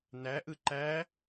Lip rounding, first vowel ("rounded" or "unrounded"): unrounded